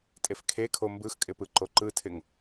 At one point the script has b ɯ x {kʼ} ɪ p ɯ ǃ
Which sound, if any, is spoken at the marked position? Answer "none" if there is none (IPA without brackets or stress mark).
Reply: kʼ